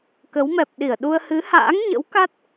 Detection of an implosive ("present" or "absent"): present